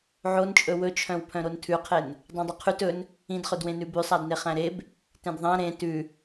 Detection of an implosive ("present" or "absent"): absent